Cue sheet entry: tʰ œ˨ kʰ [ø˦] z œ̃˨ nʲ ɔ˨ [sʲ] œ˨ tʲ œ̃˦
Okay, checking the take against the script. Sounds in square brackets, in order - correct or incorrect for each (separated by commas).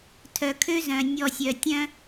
correct, correct